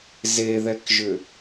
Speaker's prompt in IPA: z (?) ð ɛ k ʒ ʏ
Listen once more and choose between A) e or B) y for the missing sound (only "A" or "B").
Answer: A